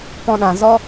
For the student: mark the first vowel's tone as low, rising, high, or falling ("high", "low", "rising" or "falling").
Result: high